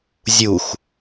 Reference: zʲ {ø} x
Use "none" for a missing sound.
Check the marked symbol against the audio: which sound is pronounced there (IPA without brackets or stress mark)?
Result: u